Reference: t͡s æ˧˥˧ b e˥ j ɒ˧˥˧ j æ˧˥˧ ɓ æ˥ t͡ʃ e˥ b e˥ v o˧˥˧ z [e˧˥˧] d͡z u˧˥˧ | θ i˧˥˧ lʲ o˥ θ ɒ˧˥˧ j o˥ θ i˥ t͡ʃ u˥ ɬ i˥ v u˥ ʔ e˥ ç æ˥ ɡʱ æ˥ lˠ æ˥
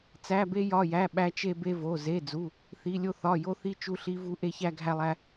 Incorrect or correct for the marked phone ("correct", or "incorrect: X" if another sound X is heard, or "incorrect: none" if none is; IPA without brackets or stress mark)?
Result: correct